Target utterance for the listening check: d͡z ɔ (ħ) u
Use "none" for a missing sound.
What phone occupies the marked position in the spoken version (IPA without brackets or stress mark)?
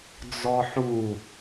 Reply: ħ